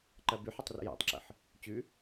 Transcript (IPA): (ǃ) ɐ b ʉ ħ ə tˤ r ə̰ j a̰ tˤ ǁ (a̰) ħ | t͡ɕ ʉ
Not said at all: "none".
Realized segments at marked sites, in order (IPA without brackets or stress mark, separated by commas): ǃ, ə̰